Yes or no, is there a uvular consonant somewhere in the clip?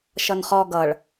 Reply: yes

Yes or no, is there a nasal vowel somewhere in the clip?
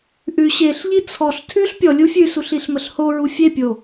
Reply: no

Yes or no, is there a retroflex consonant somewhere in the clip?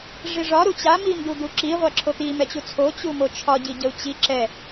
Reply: yes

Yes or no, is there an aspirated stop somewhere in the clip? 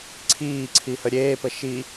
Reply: yes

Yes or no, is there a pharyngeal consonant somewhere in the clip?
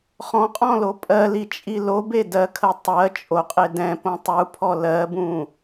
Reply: no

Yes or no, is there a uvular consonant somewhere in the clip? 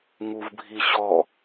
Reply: no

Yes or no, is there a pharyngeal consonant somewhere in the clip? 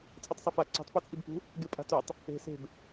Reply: no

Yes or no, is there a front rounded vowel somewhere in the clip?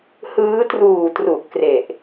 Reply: no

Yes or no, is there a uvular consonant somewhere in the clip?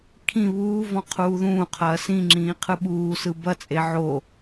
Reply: yes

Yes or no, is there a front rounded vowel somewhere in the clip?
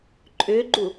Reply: yes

